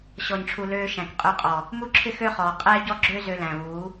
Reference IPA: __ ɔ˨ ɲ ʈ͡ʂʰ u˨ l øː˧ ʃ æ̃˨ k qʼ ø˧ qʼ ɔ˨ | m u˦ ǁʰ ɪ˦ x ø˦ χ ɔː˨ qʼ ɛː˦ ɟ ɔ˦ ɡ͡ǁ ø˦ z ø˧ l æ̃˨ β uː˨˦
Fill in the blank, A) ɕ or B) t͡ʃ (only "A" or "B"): A